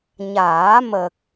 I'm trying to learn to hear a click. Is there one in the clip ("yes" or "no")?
no